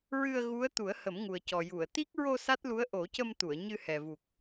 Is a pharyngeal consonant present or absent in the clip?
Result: absent